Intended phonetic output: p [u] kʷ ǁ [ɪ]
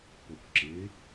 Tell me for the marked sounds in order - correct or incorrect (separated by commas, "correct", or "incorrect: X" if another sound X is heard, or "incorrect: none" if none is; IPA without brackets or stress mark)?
incorrect: o, correct